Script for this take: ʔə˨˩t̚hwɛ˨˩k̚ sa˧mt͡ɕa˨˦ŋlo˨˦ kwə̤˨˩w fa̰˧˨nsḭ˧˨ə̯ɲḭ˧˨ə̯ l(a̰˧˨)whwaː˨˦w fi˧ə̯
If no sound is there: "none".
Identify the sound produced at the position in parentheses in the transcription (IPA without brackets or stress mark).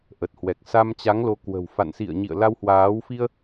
a˧